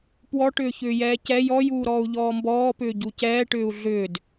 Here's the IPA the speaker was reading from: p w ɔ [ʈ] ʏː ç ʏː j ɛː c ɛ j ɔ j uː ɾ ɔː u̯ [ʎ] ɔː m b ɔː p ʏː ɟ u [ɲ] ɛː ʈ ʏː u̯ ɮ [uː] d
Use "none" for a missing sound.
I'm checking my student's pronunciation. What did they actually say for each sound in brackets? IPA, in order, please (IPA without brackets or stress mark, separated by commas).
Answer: ʈ, ʎ, c, ʏː